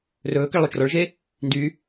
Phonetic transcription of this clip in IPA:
r ɵː k ə ɭ lˠ o t͡ʃ r ɔ ɭ ʒ e | n d y

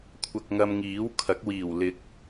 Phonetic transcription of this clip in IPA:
kʷʰ ɐ˧ k̚ ŋ ɐ˧ m ŋ iː˨˥ w kʰ ɐ˨˥ k̚ w iː˨˩ w l ɪ˨˥ k̚

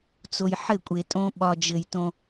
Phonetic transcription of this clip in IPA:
t͡s o˨ j ħ ɘ˦˨ kʷʼ e˨ tʼ õ˦ ɓ ɒ˨ d͡ʒ ɘ˨ j t õ˦

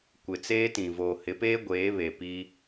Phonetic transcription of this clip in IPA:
kʷ ɪ˨ t͡s eː˦ t ĩ˨ v oː˨ h ɪ˨˦ p eː˦ ɡʷ eː˨˦ β e˨ p i˦

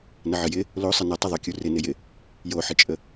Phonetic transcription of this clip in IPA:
n ə ʕ ə j ɪ | l o sˤ ɪ n ə tˤ ɪ ðˤ o kʲ u r ɪ n ɪ j ɪ | j o ħ ɪ t͡ʃʼ ə

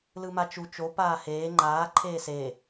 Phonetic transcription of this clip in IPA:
l ɯ m a t͡ʃ u t͡ʃ o p aː h eː ŋ͡ǃ aː ǃʰ eː s e

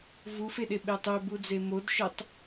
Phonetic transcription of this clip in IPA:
v u f e ɗ e ɓ e tˤ ø b u d͡z e m o d ʃ œ tˤ

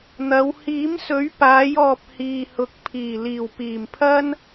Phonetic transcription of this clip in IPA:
n̪ ɐ˨˧ w h iː˨˥ m s ɵ˨˥ ɥ p aː˨˧ j ɔː˨ p̚ h iː˨ h ʊ˨˥ k̚ pʰ iː˨˩ l iː˨˩ w p iː˨˩ m pʰ ɐ˥ n

